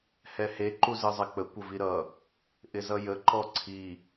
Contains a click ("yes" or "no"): yes